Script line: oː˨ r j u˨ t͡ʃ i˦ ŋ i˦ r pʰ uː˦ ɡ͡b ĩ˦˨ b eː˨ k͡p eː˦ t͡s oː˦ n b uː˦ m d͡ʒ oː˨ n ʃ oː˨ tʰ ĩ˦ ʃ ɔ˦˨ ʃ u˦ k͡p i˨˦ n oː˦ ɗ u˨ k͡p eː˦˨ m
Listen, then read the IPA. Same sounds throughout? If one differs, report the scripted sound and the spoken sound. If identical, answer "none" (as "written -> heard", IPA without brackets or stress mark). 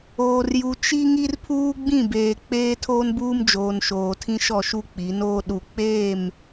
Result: t͡s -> tʰ